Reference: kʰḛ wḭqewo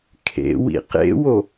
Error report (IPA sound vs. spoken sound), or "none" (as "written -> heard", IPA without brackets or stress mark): e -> ḛ